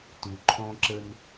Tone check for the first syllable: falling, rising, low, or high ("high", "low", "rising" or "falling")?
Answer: low